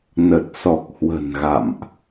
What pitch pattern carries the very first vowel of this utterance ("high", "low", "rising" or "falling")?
low